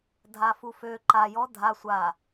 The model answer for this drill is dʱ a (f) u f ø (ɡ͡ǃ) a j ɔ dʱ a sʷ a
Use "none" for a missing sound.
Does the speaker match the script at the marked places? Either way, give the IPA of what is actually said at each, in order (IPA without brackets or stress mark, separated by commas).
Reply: f, ǃ